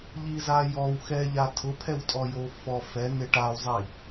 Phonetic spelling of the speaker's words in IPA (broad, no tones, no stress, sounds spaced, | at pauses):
ʎ i z a j ɔ w x ɛ ʎ a tʰ ʊ pʰ ɛ w tʼ ɔ j o f ɔ f ɛ n e ʈ a w zˤ i